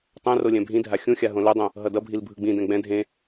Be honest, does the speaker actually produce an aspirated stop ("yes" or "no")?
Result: no